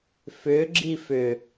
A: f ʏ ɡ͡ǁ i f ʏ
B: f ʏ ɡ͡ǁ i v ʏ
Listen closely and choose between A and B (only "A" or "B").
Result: A